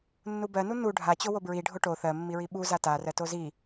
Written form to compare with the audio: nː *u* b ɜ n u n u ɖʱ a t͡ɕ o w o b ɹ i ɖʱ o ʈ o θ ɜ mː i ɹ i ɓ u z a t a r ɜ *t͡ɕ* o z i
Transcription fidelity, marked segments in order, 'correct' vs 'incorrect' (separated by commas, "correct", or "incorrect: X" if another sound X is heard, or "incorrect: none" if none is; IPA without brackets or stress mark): correct, incorrect: t